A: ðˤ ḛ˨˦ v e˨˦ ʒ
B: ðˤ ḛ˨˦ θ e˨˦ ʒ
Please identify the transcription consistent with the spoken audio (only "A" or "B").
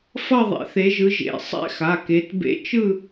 B